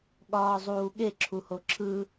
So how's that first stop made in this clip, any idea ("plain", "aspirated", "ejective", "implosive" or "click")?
implosive